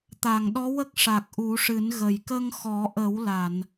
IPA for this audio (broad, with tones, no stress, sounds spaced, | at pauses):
t̪ a˨˩˨ ŋ ɗ ɔ˧˥ w ə˦˥ k̚ ʂ a˨˩ k̚ ʔ u˨˩˦ ʂ ɨ˨˩˦ n ɣ ə˨˩ j k ə˧ ŋ x ɔ˨˩˦ ʔ ə˨˩˦ w l a˨˩˨ n